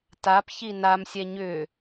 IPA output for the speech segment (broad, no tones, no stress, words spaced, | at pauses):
tap çinamsʲɛ ɲʏ